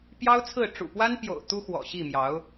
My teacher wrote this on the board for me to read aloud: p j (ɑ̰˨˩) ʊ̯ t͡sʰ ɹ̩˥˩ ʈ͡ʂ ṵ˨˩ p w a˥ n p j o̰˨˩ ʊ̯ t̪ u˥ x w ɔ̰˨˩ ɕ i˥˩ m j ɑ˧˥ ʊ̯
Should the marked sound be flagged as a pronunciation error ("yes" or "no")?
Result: yes